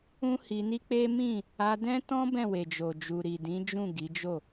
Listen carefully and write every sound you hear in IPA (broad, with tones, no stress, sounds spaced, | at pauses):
ũ˦ h i˧ n i˦ k͡p e˦ m ĩ˦˨ | a˧ d ɛ̃˦ t ɔ̃˦ b ɛ̃˦˨ w e˨ d͡ʒ o˨ d͡ʒ u˨ ɾ i˨ d ĩ˨˦ d͡ʒ ũ˦˨ ɡ i˨˦ d͡ʒ o˦˨